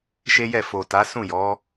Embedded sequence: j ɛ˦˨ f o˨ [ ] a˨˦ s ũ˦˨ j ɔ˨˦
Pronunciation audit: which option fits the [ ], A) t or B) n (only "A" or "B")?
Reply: A